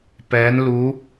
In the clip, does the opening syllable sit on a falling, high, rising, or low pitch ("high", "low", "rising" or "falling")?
rising